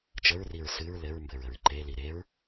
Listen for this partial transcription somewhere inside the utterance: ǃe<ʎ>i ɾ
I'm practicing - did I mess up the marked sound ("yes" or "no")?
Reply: yes